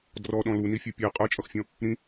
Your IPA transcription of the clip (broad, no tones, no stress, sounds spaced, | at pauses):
d r ɔ ɗ ɔ̃ l u n i fʲ ə˞ pʲ ɛ qʼ ə˞ t͡ʃʼ ʌ x fʲ ɔ̃ | ɾ ĩ